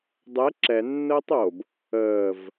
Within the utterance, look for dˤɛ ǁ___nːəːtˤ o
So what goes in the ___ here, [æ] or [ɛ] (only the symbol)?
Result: ɛ